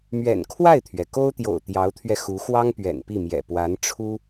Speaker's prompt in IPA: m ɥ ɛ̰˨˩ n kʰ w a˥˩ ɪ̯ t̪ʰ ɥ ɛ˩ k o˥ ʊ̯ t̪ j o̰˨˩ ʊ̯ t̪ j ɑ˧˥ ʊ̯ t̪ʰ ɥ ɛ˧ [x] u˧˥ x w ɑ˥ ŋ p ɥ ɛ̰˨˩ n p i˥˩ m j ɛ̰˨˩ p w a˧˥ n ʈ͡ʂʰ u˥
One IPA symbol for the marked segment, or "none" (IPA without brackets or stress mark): x